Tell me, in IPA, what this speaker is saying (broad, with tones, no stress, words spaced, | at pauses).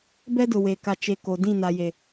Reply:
bɛ˦dʊ˨we˨ ka˨t͡ʃe˨ ko˨ dĩ˦˨na˨ je˨